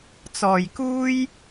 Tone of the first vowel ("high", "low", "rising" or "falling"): low